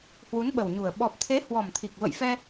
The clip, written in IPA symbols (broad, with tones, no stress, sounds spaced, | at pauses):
h w u˨˦ n ɓ ə˨˩ w ɲ u˨˩ ə̯ ɓ ɔ˨˩ p̚ t̪ʰ e˨˦ h w ɔ˨˩ m t̪ʰ i˨˩ k̚ v ə̰˧˨ j f ɛ˧